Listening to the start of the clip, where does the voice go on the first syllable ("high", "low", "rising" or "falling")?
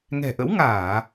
low